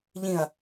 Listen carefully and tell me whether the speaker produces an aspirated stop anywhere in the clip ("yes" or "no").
no